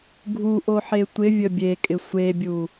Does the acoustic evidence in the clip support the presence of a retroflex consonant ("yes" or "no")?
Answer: no